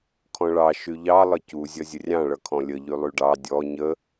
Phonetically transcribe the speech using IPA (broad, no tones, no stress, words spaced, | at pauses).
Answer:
kʰɔ̃ɭɑ ʃyʎɑ lˠəcu zʲʌzʲərʲɑ̃ ɭʌkʰɔ̃lʲə ʎylˠyɖɑ dʲɔ ɲə